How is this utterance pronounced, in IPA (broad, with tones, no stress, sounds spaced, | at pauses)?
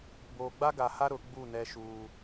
b oː˨ ɡ͡b a˦ ɡ a˨ h a˦ ɾ ʊ˨˦ ɡ͡b u˦˨ n ɛ˦ ʃ uː˦